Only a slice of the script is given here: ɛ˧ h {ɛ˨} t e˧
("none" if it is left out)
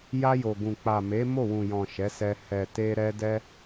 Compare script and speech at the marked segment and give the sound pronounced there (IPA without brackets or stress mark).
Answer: ɛ˨